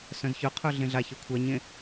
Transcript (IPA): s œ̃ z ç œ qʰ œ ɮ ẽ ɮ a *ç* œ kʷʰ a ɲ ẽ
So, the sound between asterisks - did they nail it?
yes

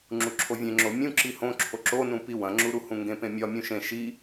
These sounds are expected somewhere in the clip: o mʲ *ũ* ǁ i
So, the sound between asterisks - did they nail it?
yes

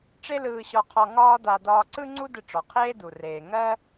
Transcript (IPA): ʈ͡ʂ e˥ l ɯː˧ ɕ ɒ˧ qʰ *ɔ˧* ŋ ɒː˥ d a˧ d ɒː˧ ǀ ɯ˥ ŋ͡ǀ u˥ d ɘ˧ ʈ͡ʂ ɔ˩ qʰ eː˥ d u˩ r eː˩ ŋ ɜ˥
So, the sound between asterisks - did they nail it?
yes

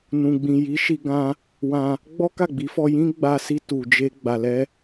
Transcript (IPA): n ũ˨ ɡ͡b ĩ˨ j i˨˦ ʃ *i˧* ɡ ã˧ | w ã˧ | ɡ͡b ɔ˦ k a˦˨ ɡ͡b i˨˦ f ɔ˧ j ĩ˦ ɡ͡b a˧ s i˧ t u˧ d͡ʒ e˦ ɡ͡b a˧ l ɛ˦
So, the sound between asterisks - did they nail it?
yes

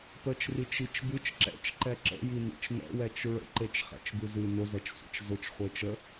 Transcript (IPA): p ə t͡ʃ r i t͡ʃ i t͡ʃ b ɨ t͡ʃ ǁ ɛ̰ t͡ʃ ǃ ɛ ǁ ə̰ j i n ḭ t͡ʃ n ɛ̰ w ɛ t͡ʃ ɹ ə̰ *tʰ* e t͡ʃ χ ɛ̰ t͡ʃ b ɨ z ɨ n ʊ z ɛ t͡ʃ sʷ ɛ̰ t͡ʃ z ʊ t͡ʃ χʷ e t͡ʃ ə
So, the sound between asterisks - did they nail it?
no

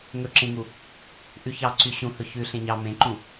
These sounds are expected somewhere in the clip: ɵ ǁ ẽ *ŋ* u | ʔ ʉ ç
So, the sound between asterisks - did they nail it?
yes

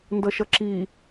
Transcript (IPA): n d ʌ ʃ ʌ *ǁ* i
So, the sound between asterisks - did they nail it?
yes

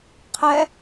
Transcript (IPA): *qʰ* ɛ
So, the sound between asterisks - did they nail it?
yes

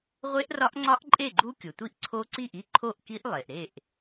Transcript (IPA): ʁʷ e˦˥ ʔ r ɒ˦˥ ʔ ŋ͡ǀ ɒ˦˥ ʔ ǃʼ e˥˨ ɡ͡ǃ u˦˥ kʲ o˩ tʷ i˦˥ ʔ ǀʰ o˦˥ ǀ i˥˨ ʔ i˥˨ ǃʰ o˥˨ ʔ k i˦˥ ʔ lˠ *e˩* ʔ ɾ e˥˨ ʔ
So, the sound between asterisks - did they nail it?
yes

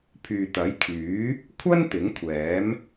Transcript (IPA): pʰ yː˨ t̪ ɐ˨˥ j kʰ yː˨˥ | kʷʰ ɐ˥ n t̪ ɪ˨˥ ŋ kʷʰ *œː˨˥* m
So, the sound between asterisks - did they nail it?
no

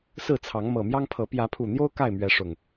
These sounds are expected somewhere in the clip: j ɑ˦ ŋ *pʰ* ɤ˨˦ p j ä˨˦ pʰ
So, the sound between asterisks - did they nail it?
yes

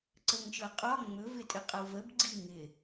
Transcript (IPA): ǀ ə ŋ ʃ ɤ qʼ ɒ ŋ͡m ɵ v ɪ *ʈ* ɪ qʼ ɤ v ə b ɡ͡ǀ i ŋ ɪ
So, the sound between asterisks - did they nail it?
no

